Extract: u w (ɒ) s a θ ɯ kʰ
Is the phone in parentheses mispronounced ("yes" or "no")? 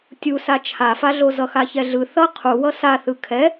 yes